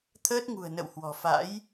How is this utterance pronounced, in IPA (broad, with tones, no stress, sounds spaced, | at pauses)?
t̪ʰ əː˦˥ t̚ ŋ ṳ˨˩ ə̯ n ə̰˧˨ w h w ɔ̤˨˩ f a̰˧˥ j